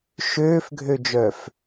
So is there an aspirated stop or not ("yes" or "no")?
no